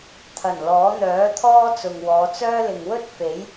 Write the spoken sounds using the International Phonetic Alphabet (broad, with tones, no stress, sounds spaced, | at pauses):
t̪ʰ ɐ˨˩ n l ɔː˨˥ n̪ œː˨˥ t̪ʰ ɔː˥ t͡s ʊ˨ ŋ w ɔː˨˧ t͡s œː˥ l ɪ˨ ŋ w ɵ˥ t̚ f e˨˥ j